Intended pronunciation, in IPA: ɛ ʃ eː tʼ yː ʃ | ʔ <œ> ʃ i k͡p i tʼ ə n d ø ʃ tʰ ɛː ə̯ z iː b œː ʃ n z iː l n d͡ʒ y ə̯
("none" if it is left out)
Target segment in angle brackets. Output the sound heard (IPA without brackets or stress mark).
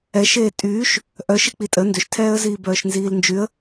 œ